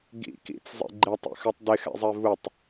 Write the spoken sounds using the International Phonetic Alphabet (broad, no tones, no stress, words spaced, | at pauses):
ɡḭ kḭt͡szˤḛ ɡ͡ǃetˤḭxœtˤ dɪxɛ̰zˤɛ vutˤ